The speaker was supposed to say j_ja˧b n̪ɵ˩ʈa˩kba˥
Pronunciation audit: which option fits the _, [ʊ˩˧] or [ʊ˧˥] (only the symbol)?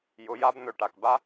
ʊ˩˧